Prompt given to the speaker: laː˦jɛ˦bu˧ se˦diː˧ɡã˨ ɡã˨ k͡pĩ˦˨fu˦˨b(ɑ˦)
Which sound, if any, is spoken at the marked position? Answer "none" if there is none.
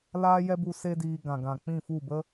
ə˦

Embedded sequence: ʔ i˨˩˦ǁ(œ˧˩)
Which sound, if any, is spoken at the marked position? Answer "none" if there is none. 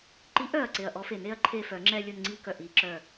œ˧˩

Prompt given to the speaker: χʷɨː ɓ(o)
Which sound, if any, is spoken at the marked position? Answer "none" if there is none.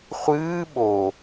o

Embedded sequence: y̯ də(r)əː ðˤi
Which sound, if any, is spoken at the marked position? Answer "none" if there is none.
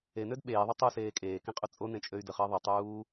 χ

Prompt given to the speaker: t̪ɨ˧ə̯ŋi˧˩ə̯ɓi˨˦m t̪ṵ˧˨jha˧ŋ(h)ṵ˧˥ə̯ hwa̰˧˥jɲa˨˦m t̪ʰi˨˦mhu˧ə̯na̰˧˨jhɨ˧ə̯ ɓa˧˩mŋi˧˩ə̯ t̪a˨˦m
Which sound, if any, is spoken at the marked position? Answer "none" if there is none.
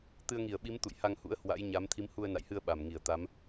h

